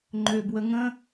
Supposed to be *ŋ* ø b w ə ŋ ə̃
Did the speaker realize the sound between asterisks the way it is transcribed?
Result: no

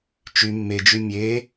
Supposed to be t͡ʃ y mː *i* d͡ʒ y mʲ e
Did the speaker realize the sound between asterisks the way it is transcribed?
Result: no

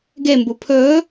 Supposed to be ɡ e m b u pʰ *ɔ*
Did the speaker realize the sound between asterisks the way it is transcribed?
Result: no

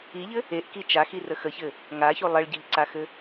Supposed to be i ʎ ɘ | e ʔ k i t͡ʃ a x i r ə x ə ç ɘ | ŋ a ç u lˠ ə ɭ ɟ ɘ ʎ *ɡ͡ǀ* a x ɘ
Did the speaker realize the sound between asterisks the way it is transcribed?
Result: no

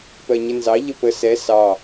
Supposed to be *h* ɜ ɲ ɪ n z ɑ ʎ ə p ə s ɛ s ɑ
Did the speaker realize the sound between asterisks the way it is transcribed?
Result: no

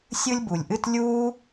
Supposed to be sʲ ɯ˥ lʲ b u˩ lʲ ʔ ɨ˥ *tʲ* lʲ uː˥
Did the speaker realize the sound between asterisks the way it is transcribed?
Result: no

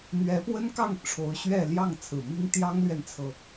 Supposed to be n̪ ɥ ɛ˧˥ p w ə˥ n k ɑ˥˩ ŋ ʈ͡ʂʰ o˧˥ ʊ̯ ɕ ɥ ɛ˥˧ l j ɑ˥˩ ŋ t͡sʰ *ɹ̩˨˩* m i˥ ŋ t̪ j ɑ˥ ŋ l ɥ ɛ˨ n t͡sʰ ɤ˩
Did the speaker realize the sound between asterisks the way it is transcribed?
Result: yes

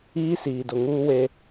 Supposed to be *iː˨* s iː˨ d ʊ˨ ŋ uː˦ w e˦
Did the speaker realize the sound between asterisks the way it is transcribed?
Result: no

